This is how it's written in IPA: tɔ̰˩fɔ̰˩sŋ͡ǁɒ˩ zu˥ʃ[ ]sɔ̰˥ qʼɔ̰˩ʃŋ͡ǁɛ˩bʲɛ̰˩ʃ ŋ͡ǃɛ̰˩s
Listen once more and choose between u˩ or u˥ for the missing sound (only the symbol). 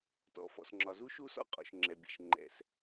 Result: u˥